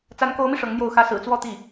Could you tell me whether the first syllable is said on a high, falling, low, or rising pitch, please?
rising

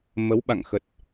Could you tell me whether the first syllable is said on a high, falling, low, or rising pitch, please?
rising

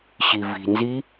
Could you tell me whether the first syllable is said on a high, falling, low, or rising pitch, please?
low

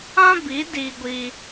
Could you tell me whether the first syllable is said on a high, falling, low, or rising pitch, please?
high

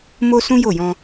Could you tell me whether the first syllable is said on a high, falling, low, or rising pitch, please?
high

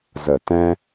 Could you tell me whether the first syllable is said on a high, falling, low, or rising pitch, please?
low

